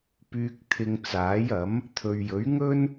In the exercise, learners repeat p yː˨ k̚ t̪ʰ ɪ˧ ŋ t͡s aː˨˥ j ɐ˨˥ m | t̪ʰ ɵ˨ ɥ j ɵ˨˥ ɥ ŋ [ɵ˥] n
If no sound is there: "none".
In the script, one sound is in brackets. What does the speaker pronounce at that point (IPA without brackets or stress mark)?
ɵ˥